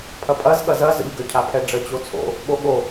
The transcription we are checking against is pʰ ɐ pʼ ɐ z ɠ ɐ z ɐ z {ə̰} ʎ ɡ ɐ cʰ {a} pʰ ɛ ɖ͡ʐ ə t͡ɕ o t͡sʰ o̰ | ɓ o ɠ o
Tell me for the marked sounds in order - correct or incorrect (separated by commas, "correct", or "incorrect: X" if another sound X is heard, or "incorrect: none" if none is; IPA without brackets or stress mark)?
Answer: correct, correct